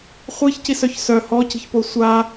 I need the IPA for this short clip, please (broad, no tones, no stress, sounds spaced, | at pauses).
χʷ i ç c i s œ ç s œ h ɔ c i̤ ç p o sʷ a